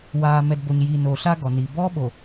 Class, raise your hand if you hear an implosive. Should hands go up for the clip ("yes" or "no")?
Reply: yes